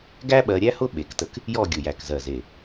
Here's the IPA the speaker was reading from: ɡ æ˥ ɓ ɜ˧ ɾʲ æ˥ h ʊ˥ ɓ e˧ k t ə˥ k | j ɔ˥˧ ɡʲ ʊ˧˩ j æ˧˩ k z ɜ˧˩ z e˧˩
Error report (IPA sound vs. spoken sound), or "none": none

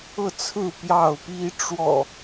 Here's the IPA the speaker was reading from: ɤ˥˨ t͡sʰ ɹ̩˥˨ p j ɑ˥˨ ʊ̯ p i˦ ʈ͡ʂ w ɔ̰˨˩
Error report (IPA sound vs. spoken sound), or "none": none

